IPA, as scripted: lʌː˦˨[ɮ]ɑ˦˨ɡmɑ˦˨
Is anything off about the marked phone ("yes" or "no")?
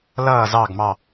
yes